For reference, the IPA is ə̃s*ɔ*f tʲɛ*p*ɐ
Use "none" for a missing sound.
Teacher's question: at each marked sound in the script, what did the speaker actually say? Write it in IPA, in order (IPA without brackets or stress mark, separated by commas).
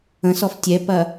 ɔ, p